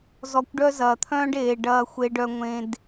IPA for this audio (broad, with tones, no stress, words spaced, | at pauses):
zɔ˧kʷɖœ˦ zɐː˨t̪ʰœ̃ː˦ɖeː˨ ɖɐː˧xʷe˧ɖœ˧ ŋʷẽ˧d